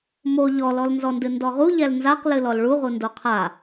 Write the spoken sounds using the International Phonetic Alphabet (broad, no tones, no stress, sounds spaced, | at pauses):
m o ʎ ɔ l ɔ l n z ɔ n d ɨ n d ɔ ʁ u ʎ ɛ l n z a q l ɨ l ɔ l ɭ u ʁ u n d o qʰ a